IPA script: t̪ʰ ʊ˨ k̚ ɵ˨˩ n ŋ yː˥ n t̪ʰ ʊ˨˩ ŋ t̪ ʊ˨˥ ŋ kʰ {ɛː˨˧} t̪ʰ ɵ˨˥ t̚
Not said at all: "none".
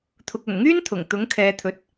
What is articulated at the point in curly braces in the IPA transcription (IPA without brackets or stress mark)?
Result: ɛː˨˧